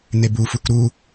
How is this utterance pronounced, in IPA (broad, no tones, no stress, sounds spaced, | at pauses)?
n e b u f u k ɾ u